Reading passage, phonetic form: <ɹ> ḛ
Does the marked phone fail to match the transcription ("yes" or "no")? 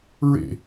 no